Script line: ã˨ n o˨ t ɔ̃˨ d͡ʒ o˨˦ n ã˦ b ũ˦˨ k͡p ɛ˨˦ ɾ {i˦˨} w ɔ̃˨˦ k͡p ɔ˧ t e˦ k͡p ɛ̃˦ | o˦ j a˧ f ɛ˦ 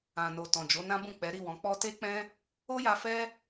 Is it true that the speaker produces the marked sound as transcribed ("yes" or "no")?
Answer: yes